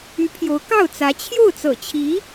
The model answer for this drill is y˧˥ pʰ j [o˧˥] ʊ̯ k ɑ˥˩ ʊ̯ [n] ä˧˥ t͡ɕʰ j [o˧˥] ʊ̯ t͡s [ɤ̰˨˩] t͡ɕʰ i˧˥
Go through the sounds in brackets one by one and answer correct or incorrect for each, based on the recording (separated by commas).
correct, incorrect, incorrect, correct